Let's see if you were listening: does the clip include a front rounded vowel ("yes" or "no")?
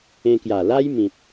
no